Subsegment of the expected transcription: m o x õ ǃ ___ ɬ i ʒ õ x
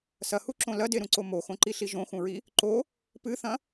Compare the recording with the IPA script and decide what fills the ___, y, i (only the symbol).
i